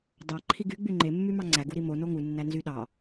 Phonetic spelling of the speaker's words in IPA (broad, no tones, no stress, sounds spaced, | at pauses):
d ɑ ǃʰ i ɡ y ɡ͡b y ŋ͡ǃ e mː y m ɑ ŋ͡ǀ æ ɡ u ɾ i m o n o ŋ u nː æ n z y ɗ ɑ